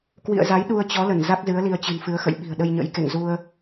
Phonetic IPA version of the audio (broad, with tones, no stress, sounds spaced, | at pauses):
k w ḭ˧˨ ə̯ z a˨˦ j ɗ u˧ ə̯ t͡ɕ ɔ˨˦ l ə˧˩ n z a˦˥ k̚ z ɨ˨˦ ə̯ l i˧ ə̯ t͡ɕ ɨ̤˨˩ n f ɨ˨˦ ə̯ x ə̰˧˨ j ɓ i̤˨˩ ə̯ ɗ ə˧ j ɲ ə̰˧˥ j k ḛ˧˨ ŋ z u˧ ə̯